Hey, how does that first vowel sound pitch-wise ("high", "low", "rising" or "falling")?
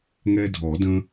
high